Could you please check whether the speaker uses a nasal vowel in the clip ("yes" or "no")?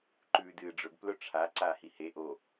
no